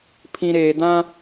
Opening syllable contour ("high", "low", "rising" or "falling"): low